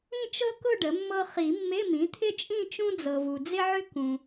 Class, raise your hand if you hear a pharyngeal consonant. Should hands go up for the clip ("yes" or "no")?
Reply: yes